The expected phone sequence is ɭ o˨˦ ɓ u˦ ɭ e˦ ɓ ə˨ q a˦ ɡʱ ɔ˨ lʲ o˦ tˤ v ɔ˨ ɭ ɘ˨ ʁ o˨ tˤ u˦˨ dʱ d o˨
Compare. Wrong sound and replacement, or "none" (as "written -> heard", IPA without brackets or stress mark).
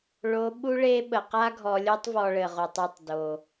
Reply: dʱ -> tˤ